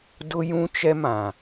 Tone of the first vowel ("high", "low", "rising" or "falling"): high